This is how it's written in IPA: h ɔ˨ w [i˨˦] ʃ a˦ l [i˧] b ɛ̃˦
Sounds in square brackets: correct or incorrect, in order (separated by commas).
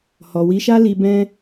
correct, correct